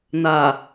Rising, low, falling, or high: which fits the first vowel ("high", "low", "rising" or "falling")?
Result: low